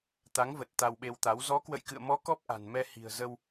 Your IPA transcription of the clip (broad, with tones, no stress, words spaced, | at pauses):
t̪a˨˦ŋvə˨˩t̚ t̪a˧wɓe˧wt̪a˨˦w zɔ˨˦kwə̰˧˨jkɨ̰˧˨ə̯mɔ˨˦ kɔ˦˥p̚ʔa̤˨˩nmɛ˧ hi̤˨˩ə̯zə˧w